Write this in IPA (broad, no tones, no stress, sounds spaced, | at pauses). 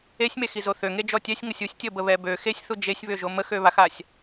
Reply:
e sʲ m e x i z o θ ø ŋ e d͡ʒ ɔ tʲ ɛ sʲ ŋ ə sʲ u sʲ tʲ ə b ə β ɛ b ø x e sʲ θ u d͡ʒ e sʲ β ø ʒ o m ə x ø β a x a sʲ